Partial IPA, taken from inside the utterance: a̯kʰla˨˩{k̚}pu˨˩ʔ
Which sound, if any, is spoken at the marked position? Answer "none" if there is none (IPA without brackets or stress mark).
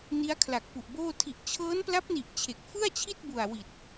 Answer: k̚